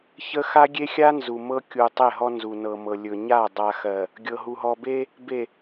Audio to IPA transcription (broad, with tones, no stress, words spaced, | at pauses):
çə˦ xa˦ɡʲe˦xʲa˦ nzu˨mɤ˦kʲu˨ tˤe˦˨ɦɔ˦ nzu˨nɤ˨mɤ˨ lʲɵ˨ɲa˦˨ dˤa˨xɜ˨ | ɡʲɤ˨ɦu˨ɦɔ˨be˦ | be˨